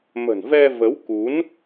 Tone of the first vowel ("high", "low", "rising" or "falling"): low